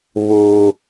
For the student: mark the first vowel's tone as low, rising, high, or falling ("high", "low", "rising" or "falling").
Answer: low